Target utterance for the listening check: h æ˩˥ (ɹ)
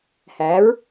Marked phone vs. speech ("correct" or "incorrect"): correct